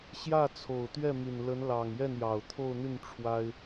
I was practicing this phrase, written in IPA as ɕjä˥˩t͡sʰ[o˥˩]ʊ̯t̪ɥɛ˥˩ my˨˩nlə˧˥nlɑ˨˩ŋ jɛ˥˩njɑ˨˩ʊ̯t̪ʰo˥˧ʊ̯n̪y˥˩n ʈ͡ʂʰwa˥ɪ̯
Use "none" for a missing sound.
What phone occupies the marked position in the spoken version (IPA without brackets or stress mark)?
o˨˩